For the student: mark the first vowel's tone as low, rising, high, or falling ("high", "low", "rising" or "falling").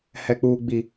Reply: low